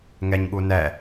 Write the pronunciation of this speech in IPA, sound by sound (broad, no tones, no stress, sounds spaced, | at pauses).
ŋ ɛ ɲ ɠ u n ɛ